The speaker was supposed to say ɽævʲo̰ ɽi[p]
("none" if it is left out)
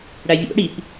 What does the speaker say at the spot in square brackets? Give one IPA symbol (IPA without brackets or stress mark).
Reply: p